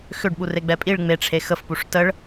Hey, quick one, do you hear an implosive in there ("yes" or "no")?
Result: yes